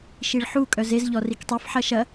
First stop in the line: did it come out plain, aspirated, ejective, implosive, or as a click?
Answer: ejective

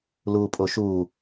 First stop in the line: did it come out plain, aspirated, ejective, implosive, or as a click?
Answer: ejective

